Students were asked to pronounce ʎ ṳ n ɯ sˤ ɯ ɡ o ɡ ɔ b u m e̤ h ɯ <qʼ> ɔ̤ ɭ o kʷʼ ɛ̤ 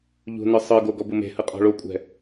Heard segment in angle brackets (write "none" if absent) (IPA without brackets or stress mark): qʼ